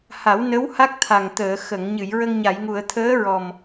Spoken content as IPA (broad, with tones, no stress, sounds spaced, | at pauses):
h a˨˩˦ w n ə˧˥ w h a˦˥ k̚ t̪ʰ a˨˩ ŋ t̪ əː˨˩˨ x ə˨˩˨ ŋ ɲ ɨ˨˩˨ j ɹ ə˧ ŋ ɲ a˨˩˨ j ŋ u˨˩˨ ə̯ t̪ʰ əː˧˥ ɹ ɔ˨˩ m